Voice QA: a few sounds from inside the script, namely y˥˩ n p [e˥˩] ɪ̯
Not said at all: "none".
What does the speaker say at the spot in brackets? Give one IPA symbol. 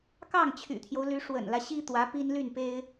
e˥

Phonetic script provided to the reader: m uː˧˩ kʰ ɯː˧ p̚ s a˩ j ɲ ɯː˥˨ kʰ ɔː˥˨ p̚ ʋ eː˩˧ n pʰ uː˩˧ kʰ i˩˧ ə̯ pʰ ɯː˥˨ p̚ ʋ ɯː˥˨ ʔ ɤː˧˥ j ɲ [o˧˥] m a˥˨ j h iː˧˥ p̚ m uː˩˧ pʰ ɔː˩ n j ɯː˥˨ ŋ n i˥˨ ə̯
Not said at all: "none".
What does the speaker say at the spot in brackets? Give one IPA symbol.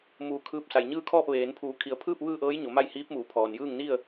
o˩˧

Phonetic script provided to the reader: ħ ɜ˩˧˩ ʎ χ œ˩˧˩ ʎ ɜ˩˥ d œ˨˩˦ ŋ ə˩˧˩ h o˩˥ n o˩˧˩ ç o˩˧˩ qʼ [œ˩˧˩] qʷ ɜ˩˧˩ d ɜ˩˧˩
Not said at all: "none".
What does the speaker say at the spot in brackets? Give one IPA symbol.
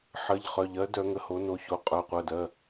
œ˩˧˩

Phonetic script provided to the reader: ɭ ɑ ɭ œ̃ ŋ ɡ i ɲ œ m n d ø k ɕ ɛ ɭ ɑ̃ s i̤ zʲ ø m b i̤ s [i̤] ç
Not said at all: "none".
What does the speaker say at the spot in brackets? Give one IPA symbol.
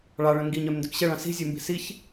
i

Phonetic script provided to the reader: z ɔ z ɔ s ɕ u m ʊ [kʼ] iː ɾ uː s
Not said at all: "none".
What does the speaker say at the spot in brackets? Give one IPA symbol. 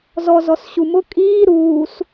kʼ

